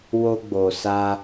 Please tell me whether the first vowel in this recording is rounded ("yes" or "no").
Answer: yes